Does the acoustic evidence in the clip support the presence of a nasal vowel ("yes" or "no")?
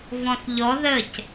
yes